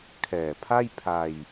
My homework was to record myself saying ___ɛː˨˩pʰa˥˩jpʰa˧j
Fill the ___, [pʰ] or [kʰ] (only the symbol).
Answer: kʰ